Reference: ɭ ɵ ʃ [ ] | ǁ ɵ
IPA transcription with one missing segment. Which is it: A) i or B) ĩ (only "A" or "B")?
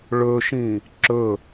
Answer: B